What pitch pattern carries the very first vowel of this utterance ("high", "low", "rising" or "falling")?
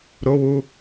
high